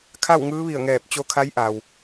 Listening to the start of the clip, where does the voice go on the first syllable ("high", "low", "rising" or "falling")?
falling